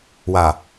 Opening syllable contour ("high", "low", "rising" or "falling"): low